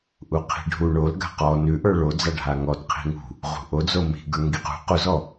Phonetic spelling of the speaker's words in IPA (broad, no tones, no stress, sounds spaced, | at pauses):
ʔ u qʰ i̤ ɖʱ u ɳ o l ɡ a̤ q ɔ n ʉ ʔ ə˞ ɭ o d͡z a ɖʱ a ŋ ɔ t qʰ i̤ ŋ ṳ | ʁ ṳ ʔ o d͡z o m i̤ ɡ ə˞ ŋ ɡ i q ṳ q u z ɔ